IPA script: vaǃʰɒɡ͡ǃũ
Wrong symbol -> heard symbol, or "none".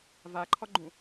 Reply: none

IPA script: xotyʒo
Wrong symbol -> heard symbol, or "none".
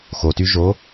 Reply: none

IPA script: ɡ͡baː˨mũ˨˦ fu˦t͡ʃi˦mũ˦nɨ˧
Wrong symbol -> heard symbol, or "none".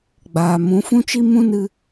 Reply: u˦ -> ũ˦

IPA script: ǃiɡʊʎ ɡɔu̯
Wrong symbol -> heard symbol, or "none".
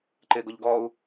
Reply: i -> ɪ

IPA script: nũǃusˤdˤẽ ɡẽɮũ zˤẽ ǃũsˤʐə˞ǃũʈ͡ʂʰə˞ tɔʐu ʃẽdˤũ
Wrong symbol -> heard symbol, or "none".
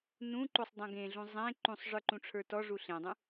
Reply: ʃ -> ɬ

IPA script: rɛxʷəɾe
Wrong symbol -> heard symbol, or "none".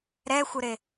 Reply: r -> ɾ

